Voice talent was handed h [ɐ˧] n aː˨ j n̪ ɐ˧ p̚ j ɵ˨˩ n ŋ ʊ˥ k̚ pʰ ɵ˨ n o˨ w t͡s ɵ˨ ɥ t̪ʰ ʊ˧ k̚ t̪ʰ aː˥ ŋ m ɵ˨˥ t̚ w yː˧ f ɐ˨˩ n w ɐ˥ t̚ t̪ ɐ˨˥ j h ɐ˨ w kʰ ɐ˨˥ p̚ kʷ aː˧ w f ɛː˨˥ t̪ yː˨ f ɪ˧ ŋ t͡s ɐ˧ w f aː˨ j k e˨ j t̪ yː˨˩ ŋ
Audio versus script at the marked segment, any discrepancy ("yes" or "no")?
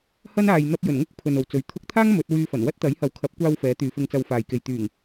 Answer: yes